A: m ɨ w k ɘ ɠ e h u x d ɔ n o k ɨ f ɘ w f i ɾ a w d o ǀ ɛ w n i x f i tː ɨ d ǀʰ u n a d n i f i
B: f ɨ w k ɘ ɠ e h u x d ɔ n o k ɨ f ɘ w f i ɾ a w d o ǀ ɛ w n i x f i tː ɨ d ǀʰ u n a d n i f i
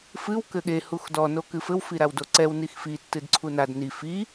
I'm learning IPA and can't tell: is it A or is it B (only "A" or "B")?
B